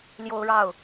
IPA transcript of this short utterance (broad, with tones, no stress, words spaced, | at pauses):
ljo˦ʊ̯ɻɑ˥˨ʊ̯